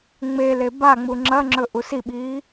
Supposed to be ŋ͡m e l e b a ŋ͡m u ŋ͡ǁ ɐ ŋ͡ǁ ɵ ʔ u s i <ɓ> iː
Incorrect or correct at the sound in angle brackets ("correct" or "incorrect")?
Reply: correct